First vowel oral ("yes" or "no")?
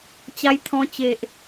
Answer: yes